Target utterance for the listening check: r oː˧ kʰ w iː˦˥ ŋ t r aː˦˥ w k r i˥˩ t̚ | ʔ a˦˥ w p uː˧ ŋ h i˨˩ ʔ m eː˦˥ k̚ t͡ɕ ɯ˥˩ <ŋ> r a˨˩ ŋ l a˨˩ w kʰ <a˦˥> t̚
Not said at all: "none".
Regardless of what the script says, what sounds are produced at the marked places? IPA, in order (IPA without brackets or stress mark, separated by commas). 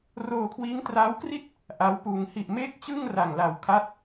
ŋ, a˦˥